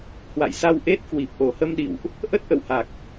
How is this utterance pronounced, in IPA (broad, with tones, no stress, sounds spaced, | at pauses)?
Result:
h w a̰˧˨ j s a˧ w ʔ e˦˥ t̚ k w i˨˩ p̚ ʔ o˨˩ h ə˧ m ɗ ḭ˧˨ w ʔ | ʔ ə˦˥ t̚ ʔ ə̰˧˨ w h a˨˩ k̚